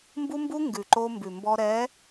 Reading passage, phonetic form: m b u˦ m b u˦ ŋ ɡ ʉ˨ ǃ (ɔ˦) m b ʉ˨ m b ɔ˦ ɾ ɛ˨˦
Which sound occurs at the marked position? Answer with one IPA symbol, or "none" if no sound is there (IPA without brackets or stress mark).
o˦